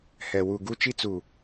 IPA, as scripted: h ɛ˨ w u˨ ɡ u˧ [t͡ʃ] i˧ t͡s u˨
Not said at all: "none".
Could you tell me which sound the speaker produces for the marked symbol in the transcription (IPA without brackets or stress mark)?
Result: t͡ʃ